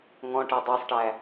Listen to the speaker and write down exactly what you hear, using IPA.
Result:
ŋ ɔ̃ ʈ ɛ dˤ ɜ sˤ ʈ æ

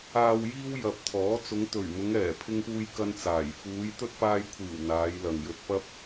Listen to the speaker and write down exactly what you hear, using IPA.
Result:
aː˨ w j iː˧ w j ɐ˨ p̚ t̪ʰ ɔː˨˥ t͡s ʊ˨˧ ŋ t̪ ɵ˨˩ ɥ m ʊ˨˧ ŋ ɛː˨˩ pʰ ɪ˧ ŋ p uː˧ j k ɐ˥ n t͡s aː˨˩ j f uː˨˧ j t̪ ɵ˥ t̚ p aː˧ j kʷʰ iː˨˩ w n̪ aː˨˧ j l ɐ˨ ŋ j ɵ˧ t̚ p ɐ˥ p̚

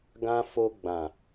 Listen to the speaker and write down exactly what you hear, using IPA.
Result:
ɡ ã˦ f o˧ ɡ͡b ã˨

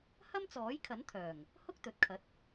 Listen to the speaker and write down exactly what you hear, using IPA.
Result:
h ɐ˥ m t͡s ɔː˨˥ j kʰ ɐ˨˥ n t̪ʰ œː˨˩ ŋ | h ʊ˥ k̚ t̪ ɵ˨˥ t̚ kʰ ɐ˨˥ t̚

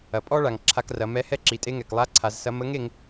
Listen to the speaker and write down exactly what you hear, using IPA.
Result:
ɐ˩ pʼ ɔ˥ ɭ a˩ ŋ ǁʰ a˧ k r ɐ˩˧ m ɛ˧˥ h ɛ˥ ǁ i˩˧ tʼ e˧ ŋ ɛ˩ k lˠ a˧˥ ǀʰ a˩˧ z s ɐ˧˥ m ə˧˥ ŋ e˧ ŋ

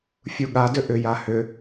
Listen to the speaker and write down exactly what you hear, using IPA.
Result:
fʲ u ɠ a d ʏ ʔ ʏ j a h ʏ

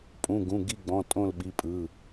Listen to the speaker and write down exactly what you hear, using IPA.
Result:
pʼ ũ˩˧˩ ɡ ũ˩˧˩ ɡ i˦˨ ɡ͡b ɔ̃˩˧˩ tʼ õ˦˨ l ɓ i˩˧˩ pʼ ɯ˩˧˩

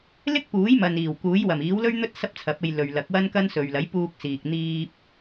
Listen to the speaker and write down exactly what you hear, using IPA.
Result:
l ɪ˥ k̚ p uː˨˥ j m ɐ˨ n iː˨˩ w k uː˨˥ j w ɐ˨˩ m iː˨˥ w l ɵ˥ ɥ n̪ ɵ˥ t̚ s ɐ˥ p̚ t͡sʰ ɐ˨˥ p̚ e˧ j l ɵ˨ ɥ l ɐ˨˥ k̚ w ɐ˥ n k ɐ˥ n s ɵ˨ ɥ l ɐ˨˥ j p uː˧ k̚ s iː˨ k̚ n̪ iː˧ p̚

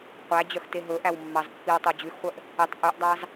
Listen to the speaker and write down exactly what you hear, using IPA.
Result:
qʷ æ d͡ʑ œ x t e ɦ ɵ ʔ æ w mː ɑ z pː i w tˤ o d͡ʑ ʉ x χʷ œ ʔ | i tˤ ʔ ʉ ʔ dˤ ɑ z

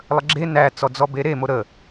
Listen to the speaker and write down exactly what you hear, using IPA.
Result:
lˠ ə ɡ͡ǁ e n æ t͡s ɔ d͡z ɔ b e ɾ e m o ɾ ə

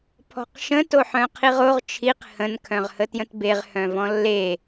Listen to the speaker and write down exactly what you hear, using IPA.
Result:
pʰ ɔ̤ q ʃ ə̃ t o ħ œ̃ qʰ i ʁ o ʁ t͡ʃʰ i q h ə̃ n kʰ œ̃ ʁ h ə t j ə̃ t b e ʁ h œ̃ v ɔ̃ lː e

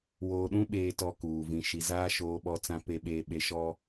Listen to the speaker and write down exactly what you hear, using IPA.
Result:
w oː˨ ɗ ũ˦ ɓ eː˨ t ɔ˦ k uː˨ v ĩ˨ ʃ i˨ z aː˦ ʃ oː˨ ɓ ɔ˨˦ t͡s ã˨ p e˨ ɓ eː˨ ɓ e˨ ʃ ɔ˦

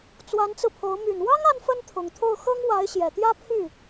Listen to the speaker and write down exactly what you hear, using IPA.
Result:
t͡s w a˧˥ n t͡s ɹ̩˧ pʰ o˧˥ ʊ̯ m y˨˩ n w ɑ˥ ŋ a˥ n f ə˥ n t̪ʰ ʊ˨˩ ŋ t̪ʰ o˥˩ ʊ̯ x ɤ˥ ŋ w a˧˥ ɪ̯ ɕ j ɛ˨˩ t̪ j ä˥ pʰ y˥˩

